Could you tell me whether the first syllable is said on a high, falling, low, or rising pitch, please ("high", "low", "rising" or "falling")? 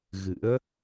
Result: rising